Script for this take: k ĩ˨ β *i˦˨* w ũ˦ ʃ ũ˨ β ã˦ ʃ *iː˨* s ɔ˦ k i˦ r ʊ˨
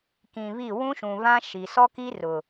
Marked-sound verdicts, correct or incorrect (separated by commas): correct, incorrect